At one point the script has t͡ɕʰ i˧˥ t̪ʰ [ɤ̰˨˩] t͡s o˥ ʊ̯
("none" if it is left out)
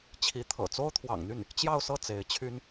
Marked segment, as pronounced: ɤ̰˨˩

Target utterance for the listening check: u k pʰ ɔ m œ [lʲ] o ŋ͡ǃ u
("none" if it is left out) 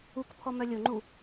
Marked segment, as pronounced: lʲ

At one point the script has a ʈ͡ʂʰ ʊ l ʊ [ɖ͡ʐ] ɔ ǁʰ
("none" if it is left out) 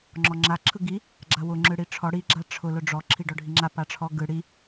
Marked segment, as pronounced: ɖ͡ʐ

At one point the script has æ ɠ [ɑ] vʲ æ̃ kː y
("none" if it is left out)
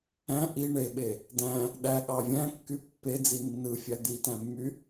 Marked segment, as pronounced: ɑ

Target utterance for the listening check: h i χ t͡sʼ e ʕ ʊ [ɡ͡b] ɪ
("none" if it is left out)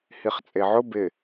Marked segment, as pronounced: b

